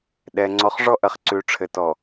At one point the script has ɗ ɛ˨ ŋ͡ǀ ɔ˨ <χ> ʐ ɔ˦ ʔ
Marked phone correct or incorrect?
correct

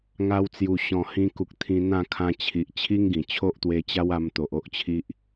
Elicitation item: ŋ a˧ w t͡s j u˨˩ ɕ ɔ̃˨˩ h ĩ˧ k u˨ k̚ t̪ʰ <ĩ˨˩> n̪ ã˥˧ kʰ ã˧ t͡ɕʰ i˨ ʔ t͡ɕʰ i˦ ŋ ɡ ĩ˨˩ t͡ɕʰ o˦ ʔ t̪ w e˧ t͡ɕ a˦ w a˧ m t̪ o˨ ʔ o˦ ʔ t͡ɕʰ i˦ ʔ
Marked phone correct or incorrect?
incorrect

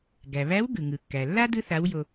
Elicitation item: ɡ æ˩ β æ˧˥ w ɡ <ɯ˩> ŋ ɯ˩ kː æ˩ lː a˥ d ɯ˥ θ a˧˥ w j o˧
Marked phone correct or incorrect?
correct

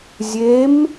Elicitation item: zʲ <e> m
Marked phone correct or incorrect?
correct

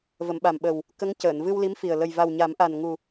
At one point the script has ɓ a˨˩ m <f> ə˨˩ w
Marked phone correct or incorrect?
incorrect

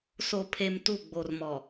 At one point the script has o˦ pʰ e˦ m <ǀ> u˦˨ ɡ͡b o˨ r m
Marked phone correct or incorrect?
incorrect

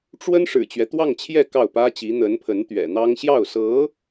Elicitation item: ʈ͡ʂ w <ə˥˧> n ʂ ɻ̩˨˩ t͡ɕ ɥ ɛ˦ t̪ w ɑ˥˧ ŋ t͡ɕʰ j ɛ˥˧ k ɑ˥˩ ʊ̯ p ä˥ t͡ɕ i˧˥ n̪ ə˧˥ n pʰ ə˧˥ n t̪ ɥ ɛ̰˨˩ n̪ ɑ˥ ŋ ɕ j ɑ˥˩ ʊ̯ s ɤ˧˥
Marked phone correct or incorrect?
incorrect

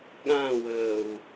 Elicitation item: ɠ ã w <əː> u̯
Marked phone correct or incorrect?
correct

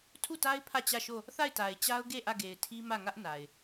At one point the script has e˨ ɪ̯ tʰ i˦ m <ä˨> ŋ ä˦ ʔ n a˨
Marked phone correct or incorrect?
incorrect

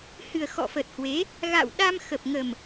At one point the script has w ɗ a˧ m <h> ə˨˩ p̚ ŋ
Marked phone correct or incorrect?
incorrect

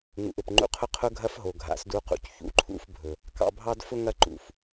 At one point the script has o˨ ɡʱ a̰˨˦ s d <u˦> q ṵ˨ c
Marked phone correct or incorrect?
incorrect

